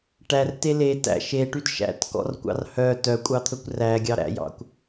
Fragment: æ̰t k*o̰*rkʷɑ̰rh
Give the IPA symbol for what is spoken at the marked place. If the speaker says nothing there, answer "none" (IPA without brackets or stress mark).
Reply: ɔ̰